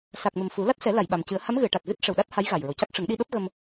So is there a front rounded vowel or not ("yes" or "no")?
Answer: no